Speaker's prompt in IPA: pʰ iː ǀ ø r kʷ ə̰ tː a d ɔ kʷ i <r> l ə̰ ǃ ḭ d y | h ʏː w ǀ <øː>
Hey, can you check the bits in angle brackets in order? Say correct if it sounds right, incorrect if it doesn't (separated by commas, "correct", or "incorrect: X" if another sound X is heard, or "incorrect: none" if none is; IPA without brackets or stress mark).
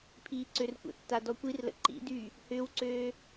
correct, correct